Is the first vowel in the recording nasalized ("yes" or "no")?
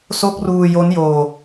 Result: no